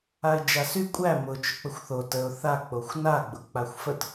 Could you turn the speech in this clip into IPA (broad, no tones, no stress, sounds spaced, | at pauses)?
a ɪ̯ d͡ʒ a s y kʷʼ æ m ʊ t͡ʃ ʊ k͡p ə xʷ θ o t ə ʊ̯ θ a k͡p o xʷ n a ɡ͡b ʊ k͡p a xʷ f ə t